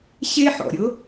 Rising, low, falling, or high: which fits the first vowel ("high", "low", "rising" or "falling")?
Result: high